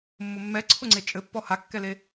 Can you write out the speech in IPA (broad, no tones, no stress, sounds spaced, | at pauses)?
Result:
mː ʊ mː ɛ ǀʰ ʊ ŋ͡ǀ e t͡ʃʼ ɘ pː ɔ h a kː ɛ l e